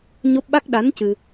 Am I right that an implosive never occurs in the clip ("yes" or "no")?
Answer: no